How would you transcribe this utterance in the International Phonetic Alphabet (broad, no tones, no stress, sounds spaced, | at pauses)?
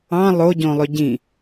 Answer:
ɑ̃ lˠ o ɟ õ lˠ ø ɟ ĩ